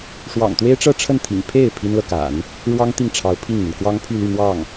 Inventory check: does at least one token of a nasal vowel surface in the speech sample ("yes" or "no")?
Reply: no